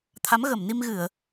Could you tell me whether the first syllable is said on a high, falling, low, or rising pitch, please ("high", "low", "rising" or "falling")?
rising